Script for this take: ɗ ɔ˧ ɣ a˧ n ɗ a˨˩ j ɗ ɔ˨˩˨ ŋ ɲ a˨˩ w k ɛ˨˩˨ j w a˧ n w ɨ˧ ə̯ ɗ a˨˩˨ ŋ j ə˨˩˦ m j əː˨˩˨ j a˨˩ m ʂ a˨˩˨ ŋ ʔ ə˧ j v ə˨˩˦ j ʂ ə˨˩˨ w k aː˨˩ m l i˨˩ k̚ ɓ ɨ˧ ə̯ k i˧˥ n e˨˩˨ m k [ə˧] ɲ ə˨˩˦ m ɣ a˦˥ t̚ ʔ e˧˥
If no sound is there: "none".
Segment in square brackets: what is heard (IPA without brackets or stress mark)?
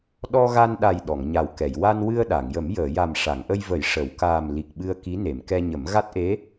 ɛ˧